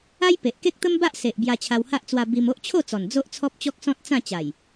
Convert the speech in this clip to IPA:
a˦ j p e˨ ʔ k e˦ k̚ t̪ ə˦ m b a˦ ʔ s e˨ ʔ b j a˧ t͡ɕʰ a˧ w h a˦ ʔ t͡s w a˧ b i˧ m o˦ ʔ t͡ɕʰ o˥˧ t͡s ɔ˨˩ n d͡z o˦ ʔ t͡sʰ ɔ˦ p̚ t͡ɕ ɔ˦ k̚ s ɔ̃˦ t̚ t͡s ã˥˧ t͡ɕ a˨˩ j

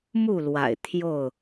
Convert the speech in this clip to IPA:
m u˥˨ l w a̰˨˩ ɪ̯ t̪ʰ j o˥˨ ʊ̯

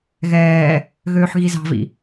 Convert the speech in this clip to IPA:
ɣ ɛː | ɣ øː ħ ɣ i z ɑ̤ v ḭ

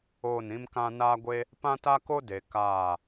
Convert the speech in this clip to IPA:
oː˦˨ n ĩ˦ m k ã˦ n aː˦ ɡʷ e˦ | p ã˦ t a˦ k o˦ d e˨ k aː˦˨

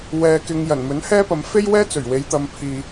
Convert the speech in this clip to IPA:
w ɛː˧ k ɪ˧ ŋ j ɐ˨˩ n m ɵ˨˥ n h ɛː˥ p ɐ˨ m f e˥ j w ɛː˥ t͡s ɵ˨˩ ɥ w e˨˧ j t̪ ɐ˨ m pʰ iː˨

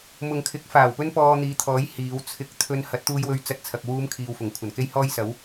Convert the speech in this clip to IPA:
m ʊ˨ ŋ kʰ ɪ˨˥ k̚ f aː˨˩ w p ɵ˥ n p ɔː˧ n̪ iː˨˧ t̪ʰ ɔː˨˥ j h iː˨˧ w t͡sʰ ɪ˧ k̚ t̪ʰ ɵ˧ n h ɐ˨˥ t̚ t̪ uː˧ j w ɵ˧ ɥ t͡s ɐ˧ t̚ t͡sʰ ɐ˨ k̚ w uː˧ m kʰ iː˧ w f ʊ˨˩ ŋ kʷʰ ɐ˨˩ n k e˥ j h ɔː˥ j s ɐ˨˥ w

